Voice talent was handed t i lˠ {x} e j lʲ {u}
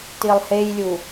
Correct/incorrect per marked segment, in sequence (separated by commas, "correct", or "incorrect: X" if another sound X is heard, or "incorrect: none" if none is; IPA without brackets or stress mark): incorrect: h, correct